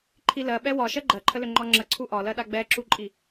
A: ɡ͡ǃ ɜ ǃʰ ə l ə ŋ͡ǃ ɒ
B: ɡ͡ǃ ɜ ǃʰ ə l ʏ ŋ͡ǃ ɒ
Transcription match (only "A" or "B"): B